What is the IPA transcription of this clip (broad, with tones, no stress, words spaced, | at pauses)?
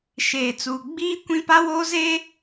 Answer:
ʃeː˨ t͡suː˨ ɡ͡biː˦kʷĩ˦ pa˦woː˦ zeː˦